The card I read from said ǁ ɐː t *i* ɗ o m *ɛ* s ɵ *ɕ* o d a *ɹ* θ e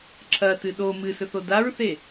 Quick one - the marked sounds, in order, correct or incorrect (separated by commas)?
incorrect, incorrect, incorrect, correct